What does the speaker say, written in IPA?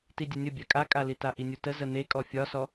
t i dʲ ə nʲ ə bʲ a kʼ a kʼ a l i t a ʔ i nʲ u t ə z ə n̪ e kʼ ɔ fʲ ɒ s ɔ

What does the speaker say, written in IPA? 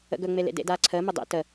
ə̰ ɡ ɵ ŋ͡m e l ḛ d ḛ d aː ǀʰ əː m ə dˤ ḛ t ə

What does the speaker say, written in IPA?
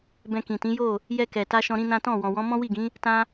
b ɛ̃˧ k ĩ˨ t ĩ˨˦ j o˦˨ | j ɛ˧ k ɛ˨ t a˧ ʃ ɔ̃˧ ɾ ĩ˦ n ã˦ t ɔ̃˦˨ w ɔ̃˨ w ɔ̃˨˦ m ɔ̃˦ w i˦˨ ɡ ĩ˨˦ | t ã˦

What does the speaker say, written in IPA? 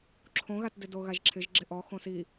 ǁʰ õ ɣ a t d ɪ d o ɣ a ʒ ǁʰ ɪ ʒ ɡ͡ǁ ɪ ʔ ɔ x õ s i

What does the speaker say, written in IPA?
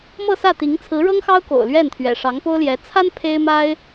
m ɤ˥˧ s ä˥˩ t̪ i˧˥ ŋ t͡sʰ ɹ̩˧˥ ɻ ɤ˥ ŋ x ɑ˥ ʊ̯ k o̰˨˩ ʊ̯ l ɥ ɛ˥˩ n t̪ʰ ɥ ɛ̰˨˩ ʂ ɑ˧˥ ŋ p o˥ ʊ̯ l j ɛ˧˥ t͡sʰ a˥ n pʰ e˥ ɪ̯ m a˥ ɪ̯

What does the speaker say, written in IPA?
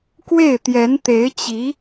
k w e˥˩ ɪ̯ t̪ j ɛ˧˥ n t̪ e˧˥ ɪ̯ t͡ɕ i˧˥

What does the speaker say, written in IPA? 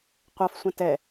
qʷ a f sʷ ɐ̃ t ɛ

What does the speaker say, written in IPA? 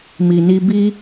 m i˨ n i˧ b i˦

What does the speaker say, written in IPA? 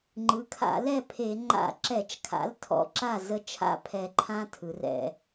ŋ͡ǃ ɯ˩˥ kʰ a̰˧˩˧ l ɛ˥˩ pʰ e˧˩˧ ŋ͡ǃ a̰˧˩˧ ǁ ɛ˧˩˧ t͡ʃ kʰ a̰˩˥ l tʰ ɔ̰˩˥ ǁ a˥˩ z ə˦ t͡ʃʰ a̰˦ pʰ ɛ˧˩˧ ǃʰ ã˦ tʰ ɯ˩˧ r ɛ̰˧˩˧

